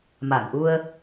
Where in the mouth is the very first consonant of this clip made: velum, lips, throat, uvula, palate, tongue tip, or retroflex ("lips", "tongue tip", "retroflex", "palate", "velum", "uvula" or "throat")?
lips